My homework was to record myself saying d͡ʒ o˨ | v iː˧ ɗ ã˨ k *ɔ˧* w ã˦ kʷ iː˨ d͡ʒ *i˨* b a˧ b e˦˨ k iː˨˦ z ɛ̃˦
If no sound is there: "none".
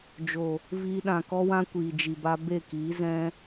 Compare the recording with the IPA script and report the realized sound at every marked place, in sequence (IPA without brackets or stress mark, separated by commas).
ɔ˦, i˨